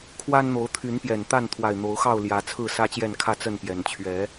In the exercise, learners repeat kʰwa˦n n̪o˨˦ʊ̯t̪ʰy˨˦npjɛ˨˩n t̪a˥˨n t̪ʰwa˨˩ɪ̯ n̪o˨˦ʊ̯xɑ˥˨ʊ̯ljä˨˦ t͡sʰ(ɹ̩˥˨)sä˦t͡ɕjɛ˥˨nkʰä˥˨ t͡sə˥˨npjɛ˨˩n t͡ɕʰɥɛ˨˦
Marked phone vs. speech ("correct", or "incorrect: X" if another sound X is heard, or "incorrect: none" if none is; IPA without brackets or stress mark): correct